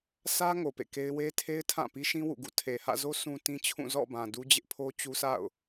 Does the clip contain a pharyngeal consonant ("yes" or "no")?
no